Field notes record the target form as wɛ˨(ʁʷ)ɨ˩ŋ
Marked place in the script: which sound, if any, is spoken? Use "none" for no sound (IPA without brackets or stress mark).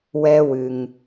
w